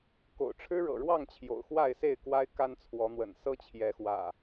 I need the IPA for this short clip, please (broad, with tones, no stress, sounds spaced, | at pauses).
k o̰˨˩ ʊ̯ ʈ͡ʂʰ ɻ̩˦ ɻ ɤ̰˨˩ ɻ w ɑ˥˨ ŋ t͡ɕʰ j o̰˨˩ ʊ̯ x w a˥˨ ɪ̯ s e˥˨ ɪ̯ k w a˦ ɪ̯ k a˦ n t͡sʰ w ɔ˨˦ n̪ w ə̰˨˩ n s ɤ˦ t͡ɕʰ j ɛ˨˦ x w ä̰˨˩